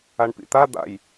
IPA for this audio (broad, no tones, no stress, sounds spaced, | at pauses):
a ɳ p ḭ t̪ a d̪ a̰ j